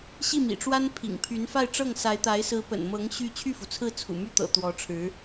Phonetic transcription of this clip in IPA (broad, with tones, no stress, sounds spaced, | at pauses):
ɕ i˥˩ m ḭ˨˩ ʈ͡ʂ w a˥ n pʰ ḭ˨˩ ŋ pʰ y˧˥ n f a˥˧ ɪ̯ ʈ͡ʂ ɤ˥˩ ŋ s a˧˥ ɪ̯ t̪ a˧˥ ɪ̯ s ɹ̩˧˥ p ə̰˨˩ n m ɤ˧˥ ŋ ɕ y˥˧ t͡ɕʰ y˥˩ f u˩ t͡sʰ ɹ̩˥˩ t͡sʰ ṵ˨˩ m y˥˩ t̪ ɤ̰˨˩ t̪ w ɔ˧˥ ʈ͡ʂʰ ɻ̩˧˥